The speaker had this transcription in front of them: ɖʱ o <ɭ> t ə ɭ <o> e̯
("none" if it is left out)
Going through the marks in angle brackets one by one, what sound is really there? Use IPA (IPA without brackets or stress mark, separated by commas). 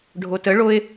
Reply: none, o